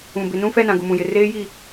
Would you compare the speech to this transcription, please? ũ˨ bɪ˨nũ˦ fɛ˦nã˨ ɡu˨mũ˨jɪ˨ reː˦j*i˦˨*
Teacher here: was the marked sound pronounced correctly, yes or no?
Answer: yes